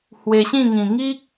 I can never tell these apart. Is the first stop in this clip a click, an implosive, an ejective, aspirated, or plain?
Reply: plain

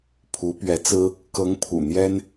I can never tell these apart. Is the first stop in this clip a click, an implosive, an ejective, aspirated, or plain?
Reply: aspirated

